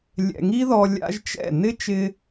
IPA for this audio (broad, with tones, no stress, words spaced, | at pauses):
lʲɛ̰˨ŋi˦ðɔ˧ lʲa̰˦ʒt͡ʃɛ̰˦˨ nɪ˦ t͡ʃɪ˦